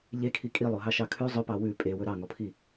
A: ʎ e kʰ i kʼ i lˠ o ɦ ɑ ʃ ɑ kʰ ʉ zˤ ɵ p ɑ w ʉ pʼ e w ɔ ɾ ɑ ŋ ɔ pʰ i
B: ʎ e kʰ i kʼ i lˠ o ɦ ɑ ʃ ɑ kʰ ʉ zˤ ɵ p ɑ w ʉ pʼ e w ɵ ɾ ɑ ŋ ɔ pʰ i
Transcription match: B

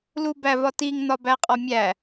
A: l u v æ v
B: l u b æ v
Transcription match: B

